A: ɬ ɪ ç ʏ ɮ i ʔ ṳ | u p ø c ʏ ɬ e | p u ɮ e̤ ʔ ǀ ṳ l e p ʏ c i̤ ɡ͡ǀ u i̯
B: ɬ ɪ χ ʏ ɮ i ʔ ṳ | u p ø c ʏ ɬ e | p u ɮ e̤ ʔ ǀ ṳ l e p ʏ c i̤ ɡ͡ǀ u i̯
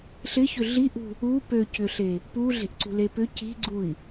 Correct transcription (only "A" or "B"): A